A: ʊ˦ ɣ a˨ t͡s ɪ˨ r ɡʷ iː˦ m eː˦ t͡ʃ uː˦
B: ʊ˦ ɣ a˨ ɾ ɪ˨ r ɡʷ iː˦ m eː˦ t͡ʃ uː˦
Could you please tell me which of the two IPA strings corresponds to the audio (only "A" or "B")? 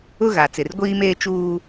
A